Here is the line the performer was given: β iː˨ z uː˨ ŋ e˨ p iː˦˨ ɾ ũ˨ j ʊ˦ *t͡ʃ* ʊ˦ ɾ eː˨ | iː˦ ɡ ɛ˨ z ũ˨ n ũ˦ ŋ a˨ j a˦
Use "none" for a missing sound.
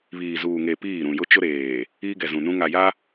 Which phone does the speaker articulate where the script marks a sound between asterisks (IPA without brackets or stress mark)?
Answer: t͡ʃ